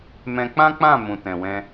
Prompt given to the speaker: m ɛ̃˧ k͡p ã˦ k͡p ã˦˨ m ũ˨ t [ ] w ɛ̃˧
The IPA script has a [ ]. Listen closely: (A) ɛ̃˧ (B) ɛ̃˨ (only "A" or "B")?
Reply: B